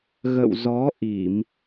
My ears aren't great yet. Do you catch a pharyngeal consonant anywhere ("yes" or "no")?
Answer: no